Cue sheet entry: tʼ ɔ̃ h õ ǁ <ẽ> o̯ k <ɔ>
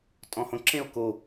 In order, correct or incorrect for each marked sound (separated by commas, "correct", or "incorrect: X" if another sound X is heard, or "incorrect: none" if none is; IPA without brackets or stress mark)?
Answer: correct, incorrect: o